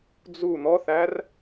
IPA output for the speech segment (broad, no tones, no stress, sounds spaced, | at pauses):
d͡z u n̪ ɔ θ æ r